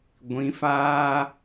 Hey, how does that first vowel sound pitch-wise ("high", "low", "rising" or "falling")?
rising